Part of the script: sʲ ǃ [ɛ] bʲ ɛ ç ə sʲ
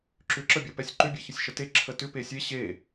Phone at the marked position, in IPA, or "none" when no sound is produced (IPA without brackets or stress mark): ʏ